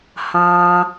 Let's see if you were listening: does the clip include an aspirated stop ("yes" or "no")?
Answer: no